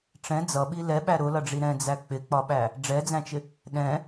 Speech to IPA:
ʈ͡ʂ ɛ̃ d͡z ʌ ɓ i l ɛ ɓ æ ɾ ʊ l ʌ ɖ͡ʐ i ɾ ɛ̃ d͡z æ k͡p ɪ k͡p ɒ ɓ æ | ɖ͡ʐ ɛ d͡z æ̃ t͡ʃ ɪ | ɗ ɛ̃

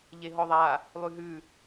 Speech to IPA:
ʎ e ɦ ɔ ðˤ a | lˠ ʉ ɦ ʉ

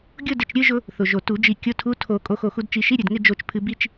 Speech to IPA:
ɡʲ ʊ˥˧ d ɪ˧˩ t͡ʃ ɾʲ ɨ˥˧ ʒ ʊ˧ | θ ʊ˩ ʒ o˩ t u˨˩˦ d͡ʒ i˧˩ kʲ ʊ˧˥˧ tʰ u˧˥˧ tʰ o˨˩˦ kʼ o˧ x o˧˩ x u˧ d t͡ʃ i˨˩˦ ʃ i˧˥˧ ɾʲ ɨ˩ d ŋ ɪ˥˧ d͡ʒ o˧˩ t͡ʃ pʰ ɨ˧ b i˥˧ t͡ʃ

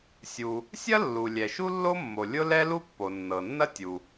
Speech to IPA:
sʲ u˩ | sʲ ɐ˥ lː u˩ lʲ ɛ˩ ʃ u˥ lː o˥ mː o˩ lʲ ʊ˥ l ɛ˥ l u˥ pː o˩ nː ɤ˩ nː ɐ˥ tʲ u˩

